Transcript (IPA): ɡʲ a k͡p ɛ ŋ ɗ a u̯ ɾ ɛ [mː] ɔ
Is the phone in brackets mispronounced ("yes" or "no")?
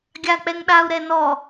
yes